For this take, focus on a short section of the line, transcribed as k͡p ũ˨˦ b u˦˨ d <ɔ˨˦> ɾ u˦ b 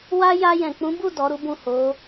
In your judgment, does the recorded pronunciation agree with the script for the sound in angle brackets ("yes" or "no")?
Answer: yes